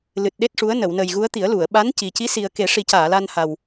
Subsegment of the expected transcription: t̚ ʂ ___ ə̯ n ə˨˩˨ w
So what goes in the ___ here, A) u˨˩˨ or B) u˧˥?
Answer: B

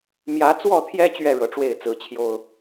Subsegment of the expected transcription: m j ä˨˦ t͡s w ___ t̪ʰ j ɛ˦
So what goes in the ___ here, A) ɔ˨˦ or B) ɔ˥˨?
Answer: B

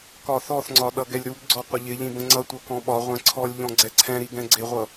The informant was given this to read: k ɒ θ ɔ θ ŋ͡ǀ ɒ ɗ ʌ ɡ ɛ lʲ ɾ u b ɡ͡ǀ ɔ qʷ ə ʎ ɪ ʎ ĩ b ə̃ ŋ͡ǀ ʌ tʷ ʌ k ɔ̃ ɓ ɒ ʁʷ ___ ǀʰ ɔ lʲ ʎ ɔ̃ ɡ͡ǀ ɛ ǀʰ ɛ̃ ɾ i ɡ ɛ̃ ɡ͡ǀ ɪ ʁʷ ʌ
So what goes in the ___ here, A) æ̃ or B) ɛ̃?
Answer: B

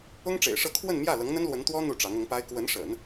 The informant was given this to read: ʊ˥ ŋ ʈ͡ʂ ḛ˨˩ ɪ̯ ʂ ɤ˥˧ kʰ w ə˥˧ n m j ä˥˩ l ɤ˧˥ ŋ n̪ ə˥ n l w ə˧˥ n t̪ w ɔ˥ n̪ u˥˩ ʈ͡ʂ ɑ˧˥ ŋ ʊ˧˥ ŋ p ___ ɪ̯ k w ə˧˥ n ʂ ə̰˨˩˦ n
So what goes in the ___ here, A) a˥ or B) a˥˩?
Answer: A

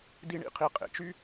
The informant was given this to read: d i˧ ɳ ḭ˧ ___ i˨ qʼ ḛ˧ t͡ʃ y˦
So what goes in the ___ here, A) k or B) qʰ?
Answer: B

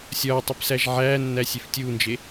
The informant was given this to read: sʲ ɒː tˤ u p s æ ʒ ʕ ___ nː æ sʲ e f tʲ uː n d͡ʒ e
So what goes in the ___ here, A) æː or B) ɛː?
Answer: A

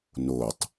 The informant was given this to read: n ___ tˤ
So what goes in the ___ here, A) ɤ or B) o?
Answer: B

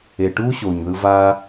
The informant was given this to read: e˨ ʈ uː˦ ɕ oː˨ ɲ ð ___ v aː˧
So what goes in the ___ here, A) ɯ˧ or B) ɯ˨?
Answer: A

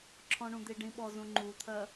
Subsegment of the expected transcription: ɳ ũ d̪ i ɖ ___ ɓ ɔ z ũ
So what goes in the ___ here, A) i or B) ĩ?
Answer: B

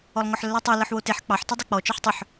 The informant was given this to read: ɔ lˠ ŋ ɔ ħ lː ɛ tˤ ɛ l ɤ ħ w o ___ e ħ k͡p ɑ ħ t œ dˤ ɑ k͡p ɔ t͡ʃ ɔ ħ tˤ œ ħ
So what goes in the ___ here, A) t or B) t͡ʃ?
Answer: A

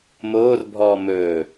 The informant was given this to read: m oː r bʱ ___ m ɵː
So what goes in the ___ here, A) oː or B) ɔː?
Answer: B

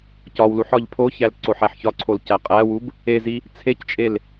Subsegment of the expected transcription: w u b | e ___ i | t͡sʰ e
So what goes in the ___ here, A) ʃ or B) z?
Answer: B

